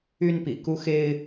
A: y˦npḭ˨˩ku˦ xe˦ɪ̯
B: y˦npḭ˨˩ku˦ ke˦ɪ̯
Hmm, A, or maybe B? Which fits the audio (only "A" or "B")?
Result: A